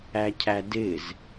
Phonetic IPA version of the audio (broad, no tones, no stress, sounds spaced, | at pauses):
æ cʰ æ d ɪ z